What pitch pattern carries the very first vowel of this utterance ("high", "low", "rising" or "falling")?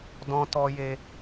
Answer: high